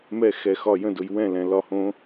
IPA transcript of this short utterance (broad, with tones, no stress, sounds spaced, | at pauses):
m ɛ˥˨ x ɛ˨ x ɒ˥˨ j ə̃˥˨ d ʊ˨ j w ɛ̃˥˨ l ɛ̃˨ l ɒ˥˨ h õ˦˥